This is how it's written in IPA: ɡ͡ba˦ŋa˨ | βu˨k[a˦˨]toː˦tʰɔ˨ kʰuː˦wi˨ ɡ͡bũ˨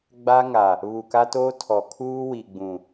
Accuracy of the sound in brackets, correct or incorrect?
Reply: incorrect